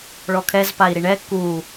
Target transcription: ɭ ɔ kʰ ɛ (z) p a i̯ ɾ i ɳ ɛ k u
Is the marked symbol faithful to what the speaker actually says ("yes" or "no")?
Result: yes